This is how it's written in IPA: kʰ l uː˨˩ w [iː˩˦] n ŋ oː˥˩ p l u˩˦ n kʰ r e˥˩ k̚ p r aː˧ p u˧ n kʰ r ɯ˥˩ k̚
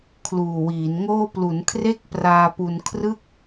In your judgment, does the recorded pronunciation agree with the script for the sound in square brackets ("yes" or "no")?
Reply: yes